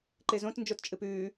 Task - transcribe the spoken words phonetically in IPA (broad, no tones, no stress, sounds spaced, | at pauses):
ǃ e z õ t n d͡ʒ o t t͡ʃʼ ɨ p ʉː